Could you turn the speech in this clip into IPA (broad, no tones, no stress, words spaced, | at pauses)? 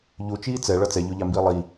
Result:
ʎut͡ʃiː t͡sɛɭʌ t͡sɛʎoʎambiː lˠi